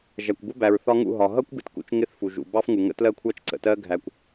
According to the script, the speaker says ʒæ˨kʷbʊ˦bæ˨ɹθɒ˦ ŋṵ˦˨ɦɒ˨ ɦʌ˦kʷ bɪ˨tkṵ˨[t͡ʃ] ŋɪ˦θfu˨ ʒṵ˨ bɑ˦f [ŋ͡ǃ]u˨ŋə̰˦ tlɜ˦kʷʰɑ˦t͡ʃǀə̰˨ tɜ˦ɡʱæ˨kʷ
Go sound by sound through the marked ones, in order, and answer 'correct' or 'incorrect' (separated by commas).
correct, incorrect